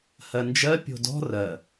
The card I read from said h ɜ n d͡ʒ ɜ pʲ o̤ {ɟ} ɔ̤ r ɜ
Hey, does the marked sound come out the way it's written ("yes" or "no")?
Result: no